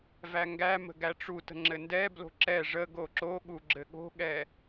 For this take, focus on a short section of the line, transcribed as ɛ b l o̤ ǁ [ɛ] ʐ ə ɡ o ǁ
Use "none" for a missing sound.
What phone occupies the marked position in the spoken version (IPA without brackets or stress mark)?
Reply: ɛ